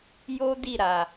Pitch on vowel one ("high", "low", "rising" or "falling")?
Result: high